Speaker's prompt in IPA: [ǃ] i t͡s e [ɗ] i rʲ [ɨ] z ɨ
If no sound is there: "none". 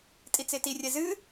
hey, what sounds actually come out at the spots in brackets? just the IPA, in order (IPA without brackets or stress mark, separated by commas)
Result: tʼ, t, ɛ